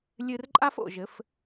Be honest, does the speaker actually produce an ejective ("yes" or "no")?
yes